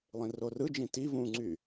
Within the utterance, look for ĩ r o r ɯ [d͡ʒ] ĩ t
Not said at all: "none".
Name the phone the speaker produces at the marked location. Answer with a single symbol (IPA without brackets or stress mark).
d͡ʒ